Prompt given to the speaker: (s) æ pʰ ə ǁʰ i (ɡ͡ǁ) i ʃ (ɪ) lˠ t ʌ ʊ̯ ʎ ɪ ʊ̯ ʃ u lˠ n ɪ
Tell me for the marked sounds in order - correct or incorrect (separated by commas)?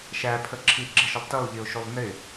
incorrect, correct, incorrect